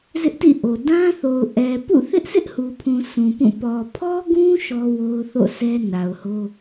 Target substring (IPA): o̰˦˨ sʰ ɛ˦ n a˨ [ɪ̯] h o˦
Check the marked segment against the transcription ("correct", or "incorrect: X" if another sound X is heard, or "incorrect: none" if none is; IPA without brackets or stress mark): incorrect: ʊ̯